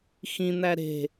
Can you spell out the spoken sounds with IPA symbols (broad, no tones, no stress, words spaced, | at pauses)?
xĩn̪æ ɾe̤